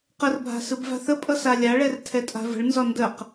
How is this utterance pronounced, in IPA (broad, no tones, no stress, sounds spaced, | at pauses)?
q ə r bʱ a̤ s ɯ b v a̤ θ ə pʼ ʌ s a lʲ a ɭ ɛ r tʰ ɛ tʼ a̤ v ə̤ ɭ n z ɒ n d ə q